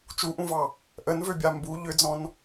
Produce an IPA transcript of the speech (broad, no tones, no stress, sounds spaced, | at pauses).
t͡ʃ u ʔ ũ v ɑ | ʔ ə n v ø bʲ a m b u ʎ ʏ d͡z ɔ̃ n